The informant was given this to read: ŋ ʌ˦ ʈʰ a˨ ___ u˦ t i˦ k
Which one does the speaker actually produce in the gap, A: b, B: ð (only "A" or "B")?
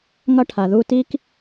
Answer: B